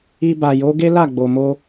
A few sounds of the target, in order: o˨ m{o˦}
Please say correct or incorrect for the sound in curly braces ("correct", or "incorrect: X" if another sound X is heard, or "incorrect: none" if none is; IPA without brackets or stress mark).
incorrect: o˧